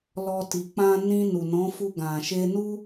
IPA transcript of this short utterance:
lɔ˧ ti˨k͡pã˧ nĩ˧nu˨nɔ̃˨˦fu˧ ɡã˨ʃe˧nu˦

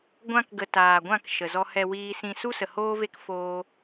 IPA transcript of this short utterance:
ɡʷã˧kɡə˨ taː˨ɡʷã˦˨k ʃə˨zɔ˧ hɛ˧wiː˧sĩ˧ su˦sə˨ hoː˦ve˦k foː˦

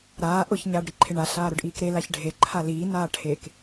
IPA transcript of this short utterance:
ɾaː ʔʊç ɲaːɖɾiǃʰeɳa ɬaːɾʊɖʔiːkɾe laçɖʱe ǃʰaliː naːʈʰek

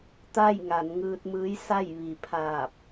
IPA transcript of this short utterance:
t̪a˥˨j ŋa˩˧nŋɯː˧t̚mɯː˧˥j sa˥˨j ʋi˩pʰaː˧˩p̚

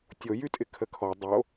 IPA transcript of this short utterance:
tʲojytʼɪ kʰəkʰɔ dˤo

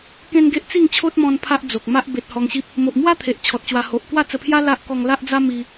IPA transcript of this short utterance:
kẽ˦nɡe˦ʔ t͡si˥˧ŋt͡ɕʰo˦t̚mɔ̃˧n pʰa˦ʔd͡zo˨k̚ma˦ʔ be˨t̚ hɔ˧ŋɕi˦p̚ | mo˨ʔmwa˦t̪ʰe˨ʔ t͡ɕʰɔ˨t̚t͡ɕwa˧ ho˨ʔ kwa˥˧t͡sə˧pʰja˦ la˦ʔ kɔ˧ŋla˦ʔd͡za˦ mi˦

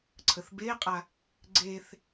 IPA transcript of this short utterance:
ǀʰəθbeqʼa | ɡ͡ǀeθ

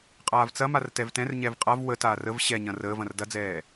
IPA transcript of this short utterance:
qʼaːvt͡sɐmar tɛvtɛ̃rɲɛv qʼav wətaːr əv ɕɛɲɐ̃ rəːvɐ̃r dɐd͡zɛː

